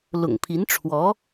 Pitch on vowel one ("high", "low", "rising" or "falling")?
low